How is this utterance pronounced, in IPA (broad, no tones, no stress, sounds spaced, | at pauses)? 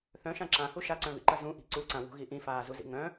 θ œ̃ ʃ ã ǁ ã h u ʃ a ǀ œ̃ β ḭ ǃ ɐ z ũ ʔ i̤ ǀ u ǀ ã w ṳ ɣ i ʔ ĩ f aː z u z ḭ ŋ œ̃